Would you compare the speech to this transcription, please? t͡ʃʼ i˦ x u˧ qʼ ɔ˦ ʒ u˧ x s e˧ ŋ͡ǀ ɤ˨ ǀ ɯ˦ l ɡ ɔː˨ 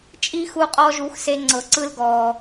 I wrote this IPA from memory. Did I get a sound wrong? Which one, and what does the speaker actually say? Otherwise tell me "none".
none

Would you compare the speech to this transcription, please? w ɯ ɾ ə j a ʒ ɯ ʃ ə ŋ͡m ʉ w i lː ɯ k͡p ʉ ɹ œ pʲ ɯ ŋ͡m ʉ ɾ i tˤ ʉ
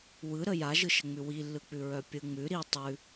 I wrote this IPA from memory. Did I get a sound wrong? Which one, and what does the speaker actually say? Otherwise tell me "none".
none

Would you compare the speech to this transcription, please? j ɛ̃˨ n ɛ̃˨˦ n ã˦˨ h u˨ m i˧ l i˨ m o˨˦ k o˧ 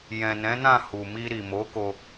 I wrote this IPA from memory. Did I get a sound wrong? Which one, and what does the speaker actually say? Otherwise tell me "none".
l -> ɾ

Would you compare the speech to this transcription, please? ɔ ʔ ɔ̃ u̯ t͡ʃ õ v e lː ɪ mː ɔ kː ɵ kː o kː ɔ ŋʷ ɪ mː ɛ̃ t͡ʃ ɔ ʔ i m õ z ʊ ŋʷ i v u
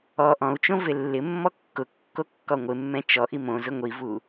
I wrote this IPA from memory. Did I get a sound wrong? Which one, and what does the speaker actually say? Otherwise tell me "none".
ɵ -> ʊ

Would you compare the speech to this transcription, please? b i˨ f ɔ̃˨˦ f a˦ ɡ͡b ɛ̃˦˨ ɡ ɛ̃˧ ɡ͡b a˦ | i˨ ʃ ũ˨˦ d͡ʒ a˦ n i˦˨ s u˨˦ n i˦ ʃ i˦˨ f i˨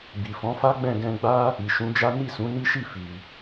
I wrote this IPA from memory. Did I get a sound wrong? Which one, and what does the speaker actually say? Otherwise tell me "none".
u˨˦ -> ũ˨˦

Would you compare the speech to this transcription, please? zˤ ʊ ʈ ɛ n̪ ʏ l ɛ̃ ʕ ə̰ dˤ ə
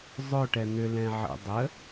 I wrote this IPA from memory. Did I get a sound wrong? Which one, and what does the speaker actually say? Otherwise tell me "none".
none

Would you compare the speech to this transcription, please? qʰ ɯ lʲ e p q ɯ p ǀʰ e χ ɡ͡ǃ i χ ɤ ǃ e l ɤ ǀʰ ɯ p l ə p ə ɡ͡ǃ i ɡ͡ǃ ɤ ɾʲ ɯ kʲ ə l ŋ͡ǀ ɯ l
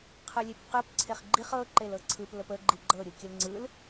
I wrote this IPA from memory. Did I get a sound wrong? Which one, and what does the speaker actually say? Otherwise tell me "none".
none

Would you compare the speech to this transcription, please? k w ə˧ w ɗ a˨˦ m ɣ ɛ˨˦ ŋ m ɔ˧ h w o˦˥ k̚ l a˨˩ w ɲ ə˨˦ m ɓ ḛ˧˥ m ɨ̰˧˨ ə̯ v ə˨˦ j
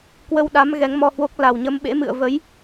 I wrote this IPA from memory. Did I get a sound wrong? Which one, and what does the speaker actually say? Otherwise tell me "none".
none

